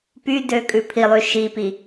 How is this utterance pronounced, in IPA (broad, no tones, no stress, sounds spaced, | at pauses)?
p y d ø kʼ ʉ pʰ i lˠ y ʃ i p i